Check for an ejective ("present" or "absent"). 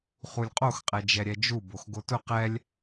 present